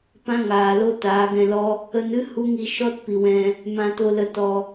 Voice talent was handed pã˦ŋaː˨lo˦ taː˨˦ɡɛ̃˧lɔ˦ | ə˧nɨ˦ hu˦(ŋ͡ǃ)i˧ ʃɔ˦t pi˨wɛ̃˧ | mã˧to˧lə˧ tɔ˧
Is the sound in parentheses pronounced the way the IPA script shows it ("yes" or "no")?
no